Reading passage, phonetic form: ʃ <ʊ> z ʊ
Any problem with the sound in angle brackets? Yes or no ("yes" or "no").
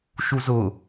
yes